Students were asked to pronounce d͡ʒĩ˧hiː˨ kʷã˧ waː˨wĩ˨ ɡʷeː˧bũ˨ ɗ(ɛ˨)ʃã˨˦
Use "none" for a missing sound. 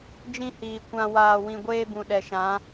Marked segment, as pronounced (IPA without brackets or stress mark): ɛ˨